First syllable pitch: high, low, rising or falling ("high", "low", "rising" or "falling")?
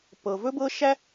low